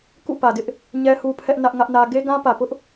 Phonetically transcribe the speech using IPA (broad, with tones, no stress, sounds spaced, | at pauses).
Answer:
k ṵ˦˨ p ä˨ d ɪ˦ ʔ | ɲ ɛ˦ h u˦ pʰ ɛ˦ ʔ n ä˦ ʔ ŋ ä˦ ʔ n ä˦ ɡ e˦ ɡ ã˦ p ä˨ p ʊ˦ ʔ